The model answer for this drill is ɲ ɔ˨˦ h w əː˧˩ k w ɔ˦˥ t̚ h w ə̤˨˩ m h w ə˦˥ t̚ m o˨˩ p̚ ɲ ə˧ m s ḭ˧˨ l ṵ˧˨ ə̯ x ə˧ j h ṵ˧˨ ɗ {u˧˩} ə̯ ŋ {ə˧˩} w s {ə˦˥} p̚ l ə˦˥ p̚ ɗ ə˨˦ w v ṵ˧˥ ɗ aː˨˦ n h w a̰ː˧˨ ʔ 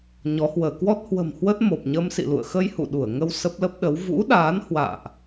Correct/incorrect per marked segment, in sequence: correct, incorrect: ə˧, correct

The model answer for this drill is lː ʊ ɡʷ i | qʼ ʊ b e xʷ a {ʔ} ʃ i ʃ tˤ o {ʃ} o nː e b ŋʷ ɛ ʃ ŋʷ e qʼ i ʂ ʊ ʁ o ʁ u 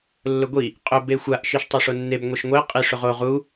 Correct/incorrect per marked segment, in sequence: correct, incorrect: ʂ

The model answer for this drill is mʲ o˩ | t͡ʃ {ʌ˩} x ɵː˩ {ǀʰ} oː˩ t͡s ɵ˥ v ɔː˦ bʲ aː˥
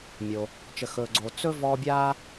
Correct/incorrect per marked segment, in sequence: incorrect: ə˩, incorrect: ɡ͡ǀ

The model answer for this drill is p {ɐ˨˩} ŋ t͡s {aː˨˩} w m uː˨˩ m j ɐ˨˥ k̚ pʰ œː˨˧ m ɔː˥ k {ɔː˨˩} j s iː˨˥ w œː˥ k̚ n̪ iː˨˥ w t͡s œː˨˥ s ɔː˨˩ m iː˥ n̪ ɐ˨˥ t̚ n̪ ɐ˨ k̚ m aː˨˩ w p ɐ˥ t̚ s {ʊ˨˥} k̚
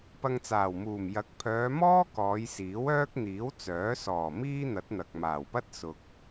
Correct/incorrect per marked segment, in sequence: incorrect: ɐ˧, correct, incorrect: ɔː˨˧, incorrect: ʊ˨

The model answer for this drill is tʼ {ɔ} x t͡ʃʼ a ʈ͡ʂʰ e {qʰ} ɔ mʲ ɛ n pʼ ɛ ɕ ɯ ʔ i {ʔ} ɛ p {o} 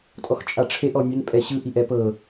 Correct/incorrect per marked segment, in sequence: correct, incorrect: ʔ, correct, incorrect: ɤ

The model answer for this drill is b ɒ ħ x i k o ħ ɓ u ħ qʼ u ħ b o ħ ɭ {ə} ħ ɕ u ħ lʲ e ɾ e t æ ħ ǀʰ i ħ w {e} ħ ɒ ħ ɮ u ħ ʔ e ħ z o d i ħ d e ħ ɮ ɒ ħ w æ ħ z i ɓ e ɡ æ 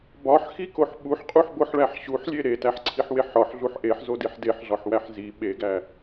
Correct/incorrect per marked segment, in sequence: incorrect: æ, correct

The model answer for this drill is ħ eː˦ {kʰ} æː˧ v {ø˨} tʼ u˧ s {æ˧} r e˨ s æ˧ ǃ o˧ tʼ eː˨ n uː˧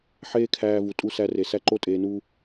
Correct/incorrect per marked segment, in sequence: correct, incorrect: u˨, correct

